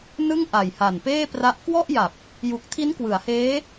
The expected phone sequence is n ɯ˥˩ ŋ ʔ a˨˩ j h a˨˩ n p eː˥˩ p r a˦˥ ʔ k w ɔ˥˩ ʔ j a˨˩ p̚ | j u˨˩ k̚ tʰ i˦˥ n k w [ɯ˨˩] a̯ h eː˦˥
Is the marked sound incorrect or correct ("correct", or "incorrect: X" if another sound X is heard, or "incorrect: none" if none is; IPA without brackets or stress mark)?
incorrect: ɯ˩˦